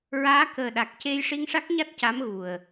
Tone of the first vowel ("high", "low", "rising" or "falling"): rising